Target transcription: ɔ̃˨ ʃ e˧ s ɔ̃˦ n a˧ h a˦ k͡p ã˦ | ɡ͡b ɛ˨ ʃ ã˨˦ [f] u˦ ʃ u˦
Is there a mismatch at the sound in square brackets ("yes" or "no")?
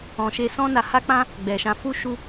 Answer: no